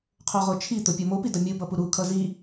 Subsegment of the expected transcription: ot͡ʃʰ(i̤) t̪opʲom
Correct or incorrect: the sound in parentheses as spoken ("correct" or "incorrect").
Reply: incorrect